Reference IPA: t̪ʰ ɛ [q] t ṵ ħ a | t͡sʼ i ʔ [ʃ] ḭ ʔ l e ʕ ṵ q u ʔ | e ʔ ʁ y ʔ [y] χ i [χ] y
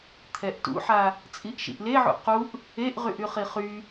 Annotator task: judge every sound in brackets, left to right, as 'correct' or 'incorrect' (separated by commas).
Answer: incorrect, correct, correct, correct